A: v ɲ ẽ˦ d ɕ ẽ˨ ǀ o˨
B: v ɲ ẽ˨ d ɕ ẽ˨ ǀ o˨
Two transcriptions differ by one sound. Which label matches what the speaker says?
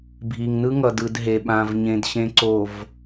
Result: B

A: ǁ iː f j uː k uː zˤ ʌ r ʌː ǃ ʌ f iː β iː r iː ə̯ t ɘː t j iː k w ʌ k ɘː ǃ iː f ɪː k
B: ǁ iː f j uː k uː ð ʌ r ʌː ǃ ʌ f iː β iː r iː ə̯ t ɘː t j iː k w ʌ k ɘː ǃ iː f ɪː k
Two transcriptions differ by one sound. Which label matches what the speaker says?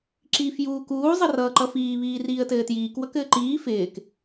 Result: A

